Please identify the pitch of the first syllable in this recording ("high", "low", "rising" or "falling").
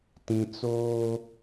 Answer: low